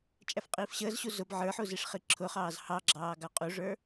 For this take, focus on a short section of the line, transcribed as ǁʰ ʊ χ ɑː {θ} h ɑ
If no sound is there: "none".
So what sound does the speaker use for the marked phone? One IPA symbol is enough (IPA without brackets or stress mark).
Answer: z